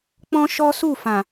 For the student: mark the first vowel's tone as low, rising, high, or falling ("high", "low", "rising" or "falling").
high